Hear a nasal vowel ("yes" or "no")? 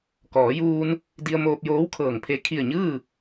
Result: no